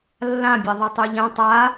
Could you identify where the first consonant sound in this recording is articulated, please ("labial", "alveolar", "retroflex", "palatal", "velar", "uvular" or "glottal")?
alveolar